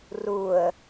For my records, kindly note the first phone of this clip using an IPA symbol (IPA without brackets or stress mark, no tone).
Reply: r